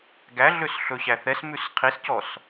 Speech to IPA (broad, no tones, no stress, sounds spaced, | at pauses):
ɡ æ ɮ ø s ɬ ɵ ɕ æ θ ɛ s m ʉ s qʰ i s c ɔ s